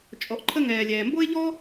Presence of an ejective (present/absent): present